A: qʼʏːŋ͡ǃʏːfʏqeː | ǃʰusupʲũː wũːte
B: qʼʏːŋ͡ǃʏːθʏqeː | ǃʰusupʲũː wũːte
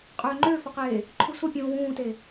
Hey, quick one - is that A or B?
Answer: A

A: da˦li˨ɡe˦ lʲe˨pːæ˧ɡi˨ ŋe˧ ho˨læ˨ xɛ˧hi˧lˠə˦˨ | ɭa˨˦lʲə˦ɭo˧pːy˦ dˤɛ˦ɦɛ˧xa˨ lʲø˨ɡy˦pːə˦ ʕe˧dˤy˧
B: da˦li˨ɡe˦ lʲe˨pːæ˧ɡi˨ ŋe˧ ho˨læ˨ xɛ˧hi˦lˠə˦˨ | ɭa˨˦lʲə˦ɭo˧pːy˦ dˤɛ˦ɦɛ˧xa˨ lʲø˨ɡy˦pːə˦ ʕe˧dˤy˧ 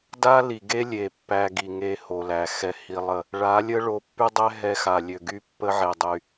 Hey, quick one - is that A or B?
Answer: A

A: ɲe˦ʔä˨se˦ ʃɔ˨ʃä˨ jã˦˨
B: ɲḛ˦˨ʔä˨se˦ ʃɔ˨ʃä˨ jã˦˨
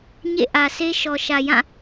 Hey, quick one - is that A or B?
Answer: B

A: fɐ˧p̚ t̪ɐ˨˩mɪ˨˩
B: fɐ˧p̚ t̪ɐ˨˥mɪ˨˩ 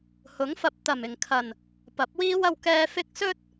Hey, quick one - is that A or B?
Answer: A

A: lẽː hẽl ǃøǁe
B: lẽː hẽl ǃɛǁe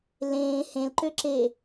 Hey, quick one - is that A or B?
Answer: A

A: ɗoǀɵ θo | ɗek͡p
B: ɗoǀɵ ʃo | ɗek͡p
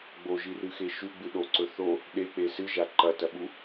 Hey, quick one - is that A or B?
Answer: A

